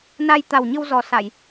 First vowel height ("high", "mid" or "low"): low